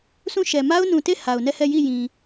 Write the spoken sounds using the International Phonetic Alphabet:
sʰ ũ˦˨ ʃ ɛ˨ m a˦ ʊ̯ n ũ˨ t e˦˨ h a˨ ʊ̯ n ɛ˦˨ h ɛ˦˨ j i˦˨ j ĩ˨

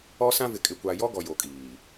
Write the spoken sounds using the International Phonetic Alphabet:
ɔ˦ s ã˦ v ɪ˨ kʼ ɪ˨ kʷ a˨ j ɔ˦ ɡ ɔ˨ j o˨ kʼ iː˨

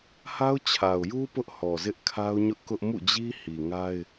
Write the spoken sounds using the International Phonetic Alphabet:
h a˦ ʊ̯ t͡ɕʰ a˨ ʊ̯ j u˦ p ʊ˦ ʔ h ɔ˨ z ɪ˦ ʔ kʰ a˦ ʊ̯ ɲ ʊ˦ ʔ k ʊ˦ ʔ m ṵ˦˨ d͡ʑ i˦ h i˨ ŋ a˦ ɪ̯

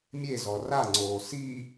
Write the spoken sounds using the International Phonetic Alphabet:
mʲ e z ɔ r a ŋ͡ǀ oː s i

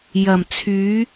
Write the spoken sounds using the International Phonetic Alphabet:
j ɐ˨˩ m t͡sʰ yː˨˥

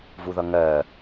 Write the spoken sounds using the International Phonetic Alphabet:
v u ð ʌ ŋ ɜ

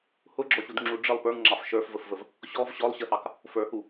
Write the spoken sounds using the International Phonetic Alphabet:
h ʊ ɡ͡ǁ ɔ ɕ u d ŋ͡ǁ u ɖ͡ʐ ə lˠ p ə˞ ŋ ŋ͡ǁ ɑ f ʃ ə˞ f v ə f v ə v | ɕ ɔ v ɕ ɔ lˠ ɕ ə h ɑ k | f ə˞ h u

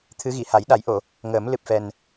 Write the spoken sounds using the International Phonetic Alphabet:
t̪ʰ ɨ˧˥ ɣ i˨˩˨ h a˨˩˦ j ɗ a˨˩˦ j ʔ o˨˩˨ | ŋ əː˨˩˦ m l ɨ˨˩ p̚ f ɛ˨˩ n

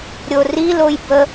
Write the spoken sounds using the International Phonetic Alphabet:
ɾʲ o r i l o j b ə

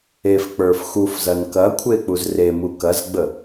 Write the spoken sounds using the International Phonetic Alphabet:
e f k͡p ə˞ f x u f z ɐ n k ɐ kʷʰ e k͡p u z r e m u k ɐ z ɡ͡b ə

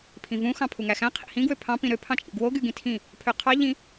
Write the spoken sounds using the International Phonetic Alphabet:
pʰ ĩ v ũ x ɑ̃ pʰ u ŋ æ x æ̃ qʰ ḭ h ĩ ɡ w ø pʰ ɑ̃ p ĩ ɾ ø pʰ ɑ̃ t͡ʃʼ ḭ ɡ w o ɡ y ɡ ĩ tʰ ĩ | pʰ ø qʰ ɑ ʎ ĩ

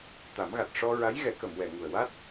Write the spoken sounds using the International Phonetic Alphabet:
t̪ a˨˩˦ m ɣ a˨˩ t̚ ʂ ɔ˧ ɹ a˧˥ j ɣ ɛ˨˩˦ k ə˨˩˨ m w ɛ˨˩˨ ŋ u˨˩ ə̯ w a˦˥ t̚

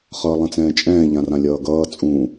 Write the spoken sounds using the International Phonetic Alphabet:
χ ʌː lˠ ɛ̃ t͡s ɛ̃ː t͡ʃʼ ɛ̃ː ʎ ã r ã lʲ ʌː ɡ ʌː t͡sʼ ũ

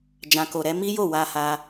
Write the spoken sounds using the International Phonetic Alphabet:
d͡ʒ ã˨ k o˨ ɾ ɛ˧ m i˦ j o˦˨ w a˧ h a˧

